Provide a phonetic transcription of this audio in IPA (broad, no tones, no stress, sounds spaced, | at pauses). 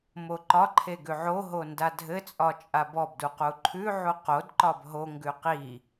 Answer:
m o ǃ ɒ ǃʰ e ɡ ʉ ʕ o ɦ o n d a dʱ ɘ t͡sʼ ɒ t͡ʃʼ a b ɔ b d u q u ǃʰ ʉ ʕ u q o d ǃ ɒ b ɦ o ŋ ɡ ʉ q i